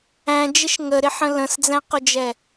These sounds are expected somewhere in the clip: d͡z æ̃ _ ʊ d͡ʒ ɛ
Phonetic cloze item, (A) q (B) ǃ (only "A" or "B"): A